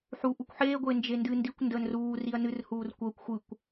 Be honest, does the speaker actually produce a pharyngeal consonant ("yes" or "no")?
yes